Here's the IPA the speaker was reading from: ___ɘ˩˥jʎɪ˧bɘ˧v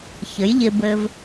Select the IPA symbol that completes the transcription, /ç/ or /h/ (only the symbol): ç